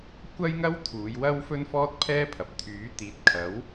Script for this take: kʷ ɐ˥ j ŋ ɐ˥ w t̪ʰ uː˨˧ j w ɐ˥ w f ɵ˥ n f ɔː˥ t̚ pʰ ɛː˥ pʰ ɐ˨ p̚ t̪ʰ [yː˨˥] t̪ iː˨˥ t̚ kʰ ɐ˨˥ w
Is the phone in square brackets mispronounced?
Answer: no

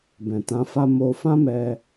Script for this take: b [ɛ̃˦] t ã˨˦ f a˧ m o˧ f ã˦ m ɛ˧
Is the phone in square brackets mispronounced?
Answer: yes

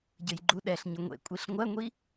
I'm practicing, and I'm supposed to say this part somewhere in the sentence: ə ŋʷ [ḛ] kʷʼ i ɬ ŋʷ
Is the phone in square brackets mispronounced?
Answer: no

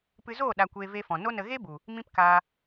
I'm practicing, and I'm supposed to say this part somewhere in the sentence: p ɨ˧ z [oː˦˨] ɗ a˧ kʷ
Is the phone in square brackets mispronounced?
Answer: no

